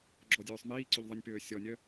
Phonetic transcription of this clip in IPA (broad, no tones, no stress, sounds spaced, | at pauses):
ɡ͡ǁ ɔ dʲ øː sˤ m iː ǀ y ʎ ðˤ ə nʲ p øː sʲ ɔ nʲ œ